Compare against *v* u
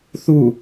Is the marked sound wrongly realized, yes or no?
yes